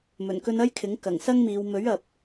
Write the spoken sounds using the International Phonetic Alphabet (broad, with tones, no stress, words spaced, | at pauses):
mɵ˨˩nkɵ˧nɐ˥jkʰɪ˨˥ŋ kɐ˨˩ŋsɐ˥ŋmiː˨˧w mɵ˨˥ɥ ɐ˨p̚